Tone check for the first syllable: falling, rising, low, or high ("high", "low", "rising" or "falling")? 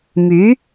rising